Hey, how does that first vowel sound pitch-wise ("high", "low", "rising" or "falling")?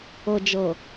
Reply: low